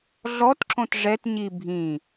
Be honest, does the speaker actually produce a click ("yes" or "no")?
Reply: yes